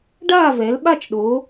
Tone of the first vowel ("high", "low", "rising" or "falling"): falling